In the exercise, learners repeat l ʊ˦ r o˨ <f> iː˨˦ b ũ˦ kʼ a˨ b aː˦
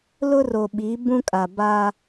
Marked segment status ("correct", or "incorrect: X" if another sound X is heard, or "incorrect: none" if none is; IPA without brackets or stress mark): incorrect: ɓ